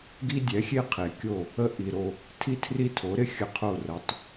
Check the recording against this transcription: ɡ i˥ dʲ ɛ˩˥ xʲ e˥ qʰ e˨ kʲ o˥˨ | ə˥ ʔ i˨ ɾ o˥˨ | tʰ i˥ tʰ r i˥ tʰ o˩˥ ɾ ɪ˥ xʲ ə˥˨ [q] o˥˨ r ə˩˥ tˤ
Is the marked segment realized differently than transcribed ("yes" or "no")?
yes